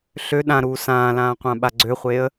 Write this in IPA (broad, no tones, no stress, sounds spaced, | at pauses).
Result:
ɬ ø ɗ ã ɾ uː s ãː l ãː qʷ ã ɓ a ɡ͡ǀ ø χʷ eː ə̯